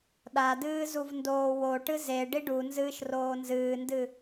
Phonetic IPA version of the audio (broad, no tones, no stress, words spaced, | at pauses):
ɗadɨːzuv ndoːwoʈɨ ze ɖiɖunzɨːʃ roːnzɨːndɨ